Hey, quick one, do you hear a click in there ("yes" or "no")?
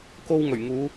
no